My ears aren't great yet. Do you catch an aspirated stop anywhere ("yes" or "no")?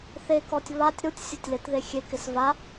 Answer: no